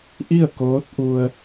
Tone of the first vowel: falling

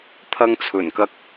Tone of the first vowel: high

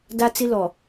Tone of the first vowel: high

